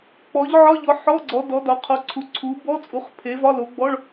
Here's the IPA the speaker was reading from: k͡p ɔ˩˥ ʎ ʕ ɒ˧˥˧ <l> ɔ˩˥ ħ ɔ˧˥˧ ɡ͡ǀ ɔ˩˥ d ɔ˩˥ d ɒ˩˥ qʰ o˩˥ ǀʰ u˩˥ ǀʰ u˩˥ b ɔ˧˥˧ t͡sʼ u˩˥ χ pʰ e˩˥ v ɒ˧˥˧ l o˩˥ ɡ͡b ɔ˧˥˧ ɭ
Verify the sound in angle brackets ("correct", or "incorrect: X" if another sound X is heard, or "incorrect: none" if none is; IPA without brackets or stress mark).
incorrect: ʎ